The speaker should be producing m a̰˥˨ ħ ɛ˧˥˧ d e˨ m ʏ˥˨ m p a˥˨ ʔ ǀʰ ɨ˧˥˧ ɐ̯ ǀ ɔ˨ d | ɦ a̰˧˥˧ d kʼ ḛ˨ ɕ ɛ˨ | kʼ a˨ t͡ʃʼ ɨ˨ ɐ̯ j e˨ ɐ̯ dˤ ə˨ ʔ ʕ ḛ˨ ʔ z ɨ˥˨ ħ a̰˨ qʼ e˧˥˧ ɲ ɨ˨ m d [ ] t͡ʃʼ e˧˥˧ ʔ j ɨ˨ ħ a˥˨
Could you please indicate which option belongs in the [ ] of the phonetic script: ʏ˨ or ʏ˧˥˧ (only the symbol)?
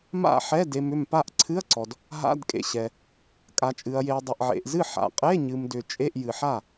ʏ˨